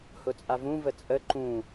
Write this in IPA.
h ʊ t͡sʼ a v ũ v ə t͡sʼ ə ǃ ũ

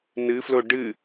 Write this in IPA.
n ɨ f l o ɖ ɨ

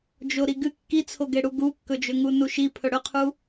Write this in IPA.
d͡ʒ o ɾ i ɡ ɨ kː i t͡sʰ o ɡ e ɽ u ɡ u kː ɵ d͡ʒ ɵ ŋ u n u ʃ i pʰ ɵ ɽ ɵ qʰ u

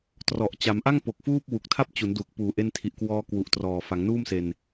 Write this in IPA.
t r ɔ˨˩ ʔ t͡ɕ a˩˦ m ʔ a˥˩ ŋ p o˨˩ k̚ f uː˥˩ p̚ w u˨˩ k̚ tʰ a˥˩ p̚ t͡ɕ u˩˦ n d u˨˩ k̚ p uː˨˩ ʔ e˧ n tʰ i˨˩ ʔ k w ɔː˦˥ k w u˨˩ ʔ t r ɔː˨˩ f a˩˦ ŋ n uː˥˩ m s e˧ n

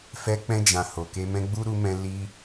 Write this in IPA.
f ɛ˧ k͡p ɛ̃˧ d͡ʒ ã˨ h o˨ k e˧ m ɛ̃˧ ɡ͡b u˦ ɾ u˧ m ɛ̃˧ l i˧

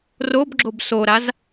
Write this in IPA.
r o b ɡ͡ǁ o b s o ɾ a z

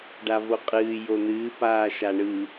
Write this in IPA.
ɖ a v o qʼ ɨː j o n̪ ɨː p aː ʃ a ɳ ɯ

